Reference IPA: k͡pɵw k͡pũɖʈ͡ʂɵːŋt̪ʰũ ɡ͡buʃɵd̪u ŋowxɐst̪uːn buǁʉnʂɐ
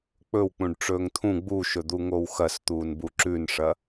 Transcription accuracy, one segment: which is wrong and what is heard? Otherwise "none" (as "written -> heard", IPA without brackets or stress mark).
none